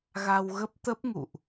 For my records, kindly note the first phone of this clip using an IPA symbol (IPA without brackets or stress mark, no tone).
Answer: ɣ